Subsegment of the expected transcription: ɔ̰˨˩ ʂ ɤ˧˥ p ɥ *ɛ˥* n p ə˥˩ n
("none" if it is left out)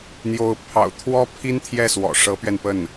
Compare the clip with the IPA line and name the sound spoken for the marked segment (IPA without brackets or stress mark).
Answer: ɛ˧